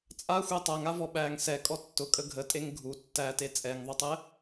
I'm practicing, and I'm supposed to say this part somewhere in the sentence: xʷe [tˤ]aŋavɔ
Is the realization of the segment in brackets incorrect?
no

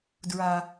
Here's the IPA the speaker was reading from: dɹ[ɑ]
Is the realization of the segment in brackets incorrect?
yes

